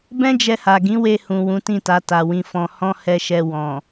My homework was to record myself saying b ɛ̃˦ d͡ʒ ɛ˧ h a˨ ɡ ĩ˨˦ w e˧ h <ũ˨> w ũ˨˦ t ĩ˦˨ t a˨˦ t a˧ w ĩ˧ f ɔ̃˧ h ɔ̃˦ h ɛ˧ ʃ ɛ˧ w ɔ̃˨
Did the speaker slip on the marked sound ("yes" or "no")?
no